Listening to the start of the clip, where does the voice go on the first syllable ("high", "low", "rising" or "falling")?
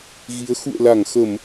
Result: rising